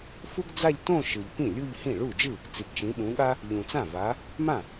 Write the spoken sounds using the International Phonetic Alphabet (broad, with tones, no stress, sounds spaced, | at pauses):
f u˥ ɡ d͡z a˥˧ ʎ t õ˥˧ ʃ ɯ˨ ʎ p ĩ˥˩ lʲ u˥˧ ʎ h ĩ˥˩ ɭ u˥˩ d͡ʒ ɯ˥˩ | t͡s i˨ ɡ t͡ʃ ĩ˨˦ ɓ ũ˨˦ ɠ a˥ | ʎ ũ˨ t͡s ã˥˩ v a˨˦ | m ã˥˩